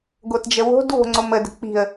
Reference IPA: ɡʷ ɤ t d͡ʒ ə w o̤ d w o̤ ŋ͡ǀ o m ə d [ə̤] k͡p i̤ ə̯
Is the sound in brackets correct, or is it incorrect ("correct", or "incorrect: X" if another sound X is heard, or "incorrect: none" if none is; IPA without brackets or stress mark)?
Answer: correct